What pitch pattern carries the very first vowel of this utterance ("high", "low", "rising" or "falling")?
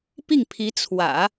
falling